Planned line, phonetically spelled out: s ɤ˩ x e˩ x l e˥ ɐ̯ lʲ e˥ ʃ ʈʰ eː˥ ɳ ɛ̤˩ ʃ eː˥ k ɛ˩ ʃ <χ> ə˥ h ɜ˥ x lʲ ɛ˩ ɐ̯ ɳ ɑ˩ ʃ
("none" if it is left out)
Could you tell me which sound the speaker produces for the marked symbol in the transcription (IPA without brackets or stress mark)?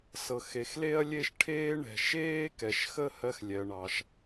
x